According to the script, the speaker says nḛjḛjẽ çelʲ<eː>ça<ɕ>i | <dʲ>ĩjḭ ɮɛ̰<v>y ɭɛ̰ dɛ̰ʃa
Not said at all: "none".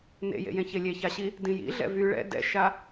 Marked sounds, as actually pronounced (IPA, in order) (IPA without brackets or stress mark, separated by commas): e, ɕ, d, v